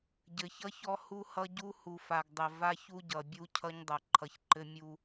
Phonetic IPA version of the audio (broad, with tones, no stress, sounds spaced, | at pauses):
ɟ ɘ˨ ç ʌ˦ ç ɔ˦ h u˦ h ʌ˦ ɟ u˦ h u˨ f a˨ ɡ dˤ ɘ˨ v a˦ ç u˦ ɟ ʌ˨ bʲ u˦ cʰ ʌ˦ ɲ dˤ ʌ˨ ǃʰ ʌ˨ ç ǃ ɘ˦ mʲ u˦